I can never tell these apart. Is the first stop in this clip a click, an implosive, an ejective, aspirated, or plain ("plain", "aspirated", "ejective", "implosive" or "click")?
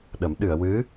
implosive